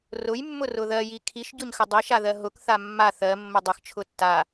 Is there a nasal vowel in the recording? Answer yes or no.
no